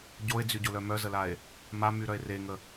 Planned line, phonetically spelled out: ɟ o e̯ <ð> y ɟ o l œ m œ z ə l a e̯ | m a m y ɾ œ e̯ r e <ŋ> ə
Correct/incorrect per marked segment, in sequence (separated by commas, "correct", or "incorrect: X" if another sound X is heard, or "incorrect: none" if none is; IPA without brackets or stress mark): incorrect: d͡z, correct